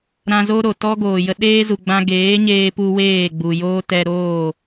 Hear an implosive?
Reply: yes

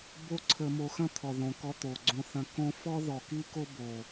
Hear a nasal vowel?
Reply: yes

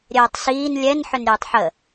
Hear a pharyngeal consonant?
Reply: yes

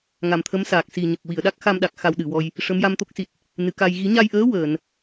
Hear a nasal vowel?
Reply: no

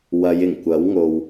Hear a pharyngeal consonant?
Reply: no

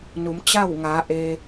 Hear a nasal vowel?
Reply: no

